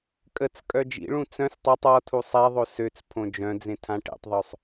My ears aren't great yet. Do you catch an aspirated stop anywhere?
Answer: yes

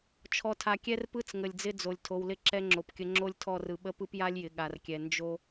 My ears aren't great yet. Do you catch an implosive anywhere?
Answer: yes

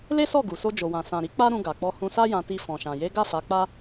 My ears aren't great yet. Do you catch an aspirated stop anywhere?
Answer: no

